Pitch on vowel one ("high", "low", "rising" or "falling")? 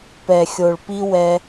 low